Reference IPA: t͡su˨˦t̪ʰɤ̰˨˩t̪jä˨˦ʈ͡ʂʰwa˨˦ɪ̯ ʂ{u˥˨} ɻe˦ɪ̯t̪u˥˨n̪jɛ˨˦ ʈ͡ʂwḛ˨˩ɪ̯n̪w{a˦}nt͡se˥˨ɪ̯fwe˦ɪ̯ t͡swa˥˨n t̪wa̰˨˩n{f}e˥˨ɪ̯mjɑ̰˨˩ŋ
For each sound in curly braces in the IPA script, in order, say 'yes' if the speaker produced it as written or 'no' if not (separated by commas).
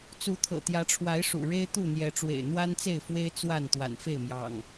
no, yes, yes